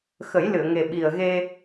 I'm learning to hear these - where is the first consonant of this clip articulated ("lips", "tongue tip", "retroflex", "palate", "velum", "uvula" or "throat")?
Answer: velum